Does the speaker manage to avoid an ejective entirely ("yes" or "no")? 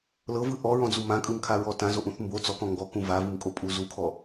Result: no